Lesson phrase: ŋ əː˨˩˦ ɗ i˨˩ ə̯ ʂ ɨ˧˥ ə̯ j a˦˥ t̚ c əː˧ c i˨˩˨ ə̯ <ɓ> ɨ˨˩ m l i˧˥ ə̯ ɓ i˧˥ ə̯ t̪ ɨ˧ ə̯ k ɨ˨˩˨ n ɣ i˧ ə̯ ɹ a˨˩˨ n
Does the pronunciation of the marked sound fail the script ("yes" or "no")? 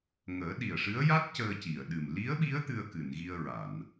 yes